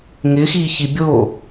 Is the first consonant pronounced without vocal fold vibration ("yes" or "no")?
no